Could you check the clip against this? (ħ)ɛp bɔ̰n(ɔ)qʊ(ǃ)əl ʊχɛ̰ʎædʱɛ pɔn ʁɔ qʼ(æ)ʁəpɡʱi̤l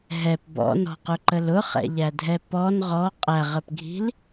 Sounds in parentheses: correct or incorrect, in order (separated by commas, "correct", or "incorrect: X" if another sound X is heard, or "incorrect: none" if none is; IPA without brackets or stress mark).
incorrect: ɦ, incorrect: ɔ̤, correct, correct